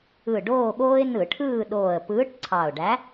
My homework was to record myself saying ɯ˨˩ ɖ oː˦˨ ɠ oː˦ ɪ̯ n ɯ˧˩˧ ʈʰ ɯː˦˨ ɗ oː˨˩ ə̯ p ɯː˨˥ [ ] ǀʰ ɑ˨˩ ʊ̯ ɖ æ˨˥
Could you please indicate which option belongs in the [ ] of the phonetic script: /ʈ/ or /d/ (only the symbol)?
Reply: ʈ